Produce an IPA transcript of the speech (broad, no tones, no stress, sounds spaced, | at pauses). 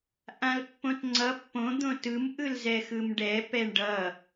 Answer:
ʔ ã l pː õ t ŋ͡ǀ ʌ pː õ d̪ õ t ɯ m ʔ ɯ l z ɛ x ɯ m ɖ ɛ p ɛ ɳ ɖ ʌ